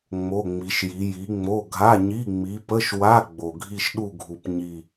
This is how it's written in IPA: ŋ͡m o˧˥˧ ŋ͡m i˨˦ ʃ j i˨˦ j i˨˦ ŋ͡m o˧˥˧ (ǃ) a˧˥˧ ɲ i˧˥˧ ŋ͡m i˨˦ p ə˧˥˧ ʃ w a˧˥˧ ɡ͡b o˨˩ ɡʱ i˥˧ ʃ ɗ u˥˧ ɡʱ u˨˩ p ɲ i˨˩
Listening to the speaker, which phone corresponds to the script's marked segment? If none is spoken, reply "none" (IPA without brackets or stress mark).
ɡʱ